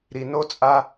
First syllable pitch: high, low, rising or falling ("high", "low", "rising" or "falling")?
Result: low